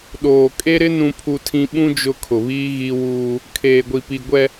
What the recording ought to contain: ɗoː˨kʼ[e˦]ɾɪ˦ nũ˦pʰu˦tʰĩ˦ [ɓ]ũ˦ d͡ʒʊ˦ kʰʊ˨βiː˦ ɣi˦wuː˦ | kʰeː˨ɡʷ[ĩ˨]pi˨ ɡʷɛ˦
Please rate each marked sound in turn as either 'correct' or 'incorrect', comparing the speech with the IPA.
correct, correct, incorrect: i˨

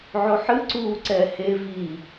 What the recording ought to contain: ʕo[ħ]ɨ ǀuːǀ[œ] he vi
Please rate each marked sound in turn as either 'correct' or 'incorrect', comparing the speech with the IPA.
correct, incorrect: ɛ

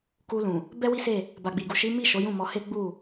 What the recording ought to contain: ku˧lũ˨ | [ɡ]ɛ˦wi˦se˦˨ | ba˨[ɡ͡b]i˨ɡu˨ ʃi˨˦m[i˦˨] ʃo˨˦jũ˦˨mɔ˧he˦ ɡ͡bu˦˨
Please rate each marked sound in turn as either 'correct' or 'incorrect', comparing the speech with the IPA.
incorrect: b, correct, correct

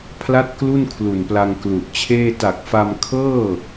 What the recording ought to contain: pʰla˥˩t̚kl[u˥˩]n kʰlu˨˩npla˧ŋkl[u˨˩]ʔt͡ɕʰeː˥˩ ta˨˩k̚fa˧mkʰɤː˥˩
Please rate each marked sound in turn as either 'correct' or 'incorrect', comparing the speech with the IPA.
correct, correct

